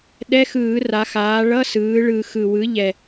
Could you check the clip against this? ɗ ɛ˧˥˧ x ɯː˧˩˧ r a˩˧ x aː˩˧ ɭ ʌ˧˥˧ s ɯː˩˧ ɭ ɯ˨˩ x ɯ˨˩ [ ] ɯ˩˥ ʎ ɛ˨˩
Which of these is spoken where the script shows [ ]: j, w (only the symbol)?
w